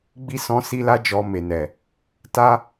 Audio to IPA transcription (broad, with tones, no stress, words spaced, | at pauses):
ɡ͡bi˧sɔ̃˧si˧la˧ d͡ʒɔ˧me˨nɛ˨ | ta˦